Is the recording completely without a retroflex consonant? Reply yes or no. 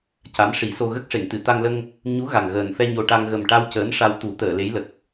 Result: no